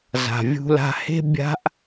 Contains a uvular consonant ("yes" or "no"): no